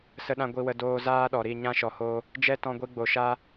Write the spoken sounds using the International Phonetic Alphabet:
sə˧ɗã˧ ɡʷi˧wə˧doː˧ zaː˦ɗɔ˨ɾi˦˨ ɲã˦ʃɔ˨ho˧ | d͡ʒɛ˦tɔ̃˧ɡʷi˧ ɡ͡bo˨ʃa˧

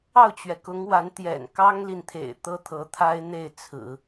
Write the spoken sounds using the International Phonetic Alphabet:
ɑ˥˩ʊ̯t͡ɕɥɛ˩ kʊ˧˥ŋ wa˧˥nt̪jɛ̰˨˩n kɑ˥ŋli˨nt̪ʰḛ˨˩ɪ̯ t̪ɤ˥t̪ʰɤ˧˥t̪ʰa˥ɪ̯ n̪e˥˩ɪ̯t͡sʰɹ̩˨˩˦

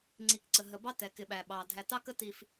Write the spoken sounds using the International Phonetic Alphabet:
ŋ͡ǀi˨kǀə˨ɦə˨ bɑ˦tɛ˨kɪ˨ɓæ˨ ɓɑ˨ dʱæ˨tɑ˦kə˦ ti˦f

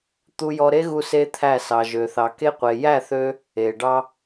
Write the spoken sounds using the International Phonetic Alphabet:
t̪u˧jɔ˧ɾe˦ɣu˧ se˦t̪ʰæ˦˨ sɑ˨ʒø˨θɑ˨ke˧ qʷe˨jæ˦˨θø˧ | e˨ɖɑ˧

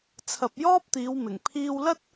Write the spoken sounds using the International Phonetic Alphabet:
t͡sʰɐ˨p̚jɔː˥p̚t̪iː˨˧wmɪ˨˩ŋ pʰiː˧wlɐ˥t̚

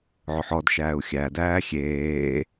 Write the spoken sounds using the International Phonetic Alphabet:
ʕʊħɔdʃæːu̯ xʲæ dæːxʲeː

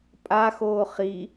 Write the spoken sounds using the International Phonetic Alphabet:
pʼaxoː χi

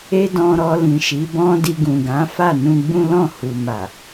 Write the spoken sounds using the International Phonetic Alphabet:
e˦dɔ̃˧ɾɔ˧ lĩ˨ʃi˨˦bɔ̃˦di˧ ɡũ˨ɡã˨˦ fa˦˨nũ˧ɡ͡bũ˦ lɔ̃˦˨ hu˨ma˨

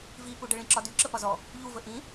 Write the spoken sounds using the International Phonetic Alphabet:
vipuɖə ɭĩǁɒdy ǁəpɒzɔ | ʎuvə ʔĩ

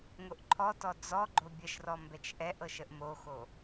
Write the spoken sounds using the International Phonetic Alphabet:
ŋoʔǃʰɔtɔ d͡zɔɡ͡ǃo bʲəʃrɔ mbɛt͡ʃʔɛʔɤʃ əʔmoxo

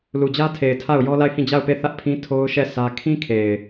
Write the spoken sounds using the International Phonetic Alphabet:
lu˨d͡ʑä˦tʰe˨ɪ̯ tʰa˦˨ʊ̯ jɔ˦la˦˨ɪ̯hĩ˦˨ d͡ʑa˦˨ʊ̯pe˦˨θä˦ʔpʰĩ˦ tʰo˦ʊ̯ʃɛ˦˨ sʰä˦ kʰĩ˦kʰe˨ɪ̯

